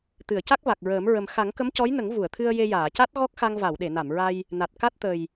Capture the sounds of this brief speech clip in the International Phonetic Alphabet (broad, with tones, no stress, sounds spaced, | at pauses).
t̪ ɨ˨˩˨ ə̯ c a˦˥ k̚ v a˨˩ k̚ ɹ əː˨˩˦ m ɹ ə˨˩ m x a˨˩˦ ŋ k ə˧˥ m c ɔ˧˥ j n ə˨˩˦ ŋ v u˨˩˨ ə̯ t̪ʰ ɨ˧ ə̯ j e˧ j aː˨˩˨ c a˦˥ t̚ ɣ ɔ˦˥ k̚ x a˧ ŋ v a˨˩˨ w ɗ e˨˩˨ n a˨˩˨ m ɹ a˧ j | n a˨˩ t̚ k a˦˥ t̚ t̪ ə˨˩ j